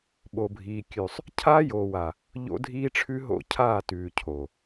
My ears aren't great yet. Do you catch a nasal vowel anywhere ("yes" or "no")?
no